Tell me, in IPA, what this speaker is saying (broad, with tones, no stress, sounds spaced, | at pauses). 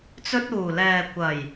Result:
t͡s ɵ˧ t̚ uː˨˩ l ɛː˨ kʷ ɐ˨˩ j